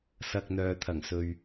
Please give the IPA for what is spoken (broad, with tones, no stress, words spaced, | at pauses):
sɐ˨k̚ n̪œː˨t̪ʰɐ˨˩ŋ sɵ˨ɥ